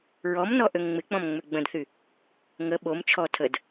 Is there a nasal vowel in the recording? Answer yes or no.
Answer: yes